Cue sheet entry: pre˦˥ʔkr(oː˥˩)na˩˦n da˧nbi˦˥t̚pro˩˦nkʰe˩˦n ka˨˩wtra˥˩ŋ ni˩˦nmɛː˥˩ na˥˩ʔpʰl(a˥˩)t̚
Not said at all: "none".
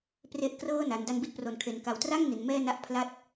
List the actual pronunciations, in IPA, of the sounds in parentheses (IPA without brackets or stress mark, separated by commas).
ɤː˥˩, a˥˩